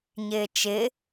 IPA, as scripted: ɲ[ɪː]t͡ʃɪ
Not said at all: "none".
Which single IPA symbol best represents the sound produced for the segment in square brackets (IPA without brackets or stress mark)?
ɪː